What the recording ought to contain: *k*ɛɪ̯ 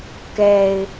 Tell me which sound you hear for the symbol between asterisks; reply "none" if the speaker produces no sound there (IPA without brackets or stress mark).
k